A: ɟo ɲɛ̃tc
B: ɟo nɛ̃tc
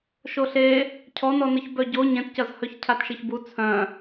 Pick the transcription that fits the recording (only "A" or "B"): A